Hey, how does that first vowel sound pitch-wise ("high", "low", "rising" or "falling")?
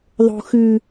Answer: low